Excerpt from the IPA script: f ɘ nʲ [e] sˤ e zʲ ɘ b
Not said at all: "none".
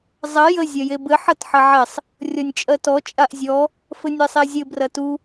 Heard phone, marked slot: e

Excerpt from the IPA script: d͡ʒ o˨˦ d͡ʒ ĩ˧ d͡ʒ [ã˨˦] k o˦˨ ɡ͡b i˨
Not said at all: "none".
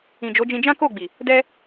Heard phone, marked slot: ã˦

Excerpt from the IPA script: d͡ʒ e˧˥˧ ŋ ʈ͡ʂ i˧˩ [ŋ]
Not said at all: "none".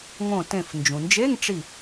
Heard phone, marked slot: none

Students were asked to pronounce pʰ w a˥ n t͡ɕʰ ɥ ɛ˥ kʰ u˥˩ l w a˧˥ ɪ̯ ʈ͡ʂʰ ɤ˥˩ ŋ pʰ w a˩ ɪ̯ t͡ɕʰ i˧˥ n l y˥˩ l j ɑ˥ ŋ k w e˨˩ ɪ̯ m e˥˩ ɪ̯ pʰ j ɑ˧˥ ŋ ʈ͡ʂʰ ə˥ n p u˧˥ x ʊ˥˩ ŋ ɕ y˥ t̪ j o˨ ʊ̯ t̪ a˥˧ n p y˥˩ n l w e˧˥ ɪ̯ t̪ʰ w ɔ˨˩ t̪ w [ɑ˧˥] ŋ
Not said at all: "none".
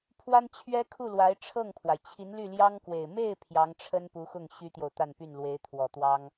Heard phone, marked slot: ɑ˥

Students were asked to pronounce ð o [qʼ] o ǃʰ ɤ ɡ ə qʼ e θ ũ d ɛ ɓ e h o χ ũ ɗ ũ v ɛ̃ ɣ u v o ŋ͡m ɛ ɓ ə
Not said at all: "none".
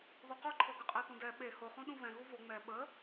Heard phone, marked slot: q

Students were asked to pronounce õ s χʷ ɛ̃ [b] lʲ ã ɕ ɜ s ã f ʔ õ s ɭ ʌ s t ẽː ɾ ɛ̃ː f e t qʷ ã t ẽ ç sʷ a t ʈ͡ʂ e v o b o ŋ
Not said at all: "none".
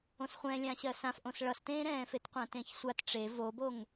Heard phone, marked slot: none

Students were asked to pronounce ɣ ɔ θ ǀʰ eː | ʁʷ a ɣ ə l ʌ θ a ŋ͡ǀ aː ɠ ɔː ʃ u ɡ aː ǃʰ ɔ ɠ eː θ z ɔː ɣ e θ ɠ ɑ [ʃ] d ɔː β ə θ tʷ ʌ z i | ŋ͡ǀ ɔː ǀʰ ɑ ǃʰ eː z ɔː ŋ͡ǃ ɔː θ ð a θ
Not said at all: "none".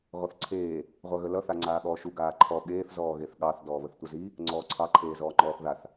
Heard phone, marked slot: θ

